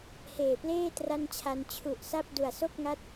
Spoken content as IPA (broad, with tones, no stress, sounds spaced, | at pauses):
h eː˨˩ p l eː˥˩ t r a˥˩ n t͡ɕʰ a˧ n t͡ɕʰ u˨˩ ʔ s a˥˩ p̚ d u˨˩ a̯ s o˥˩ k̚ ŋ a˦˥ t̚